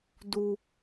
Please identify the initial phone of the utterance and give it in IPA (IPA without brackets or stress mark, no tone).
d